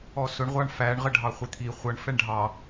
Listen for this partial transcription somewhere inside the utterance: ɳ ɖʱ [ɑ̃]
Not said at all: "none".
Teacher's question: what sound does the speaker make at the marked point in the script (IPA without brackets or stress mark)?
ɑ